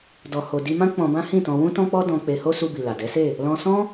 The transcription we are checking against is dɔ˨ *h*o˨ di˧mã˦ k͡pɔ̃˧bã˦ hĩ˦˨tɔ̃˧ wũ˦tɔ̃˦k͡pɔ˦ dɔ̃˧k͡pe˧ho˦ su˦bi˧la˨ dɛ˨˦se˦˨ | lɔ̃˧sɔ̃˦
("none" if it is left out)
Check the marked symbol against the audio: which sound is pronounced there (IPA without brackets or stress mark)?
h